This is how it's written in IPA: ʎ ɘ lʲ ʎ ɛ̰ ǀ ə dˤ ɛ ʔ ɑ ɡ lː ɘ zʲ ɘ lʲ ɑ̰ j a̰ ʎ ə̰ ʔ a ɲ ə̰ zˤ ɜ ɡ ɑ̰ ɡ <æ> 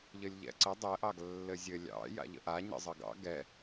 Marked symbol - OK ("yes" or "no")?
no